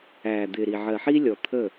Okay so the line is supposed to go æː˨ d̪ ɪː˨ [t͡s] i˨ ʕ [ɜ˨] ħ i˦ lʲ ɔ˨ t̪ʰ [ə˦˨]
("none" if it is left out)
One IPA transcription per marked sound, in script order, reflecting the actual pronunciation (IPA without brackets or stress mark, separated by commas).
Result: ɾ, ɜ˨, ə˦˨